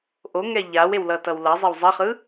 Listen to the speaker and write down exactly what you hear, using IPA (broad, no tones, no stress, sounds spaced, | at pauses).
ʔ o ŋ ɛ ʎ a w e w l ʌ t ʌ w l ʌ zˤ e w zˤ ʌ χ ɯ